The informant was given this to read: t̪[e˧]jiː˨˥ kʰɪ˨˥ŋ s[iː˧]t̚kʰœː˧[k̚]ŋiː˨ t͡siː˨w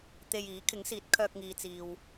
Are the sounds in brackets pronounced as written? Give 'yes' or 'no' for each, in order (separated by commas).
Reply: yes, no, yes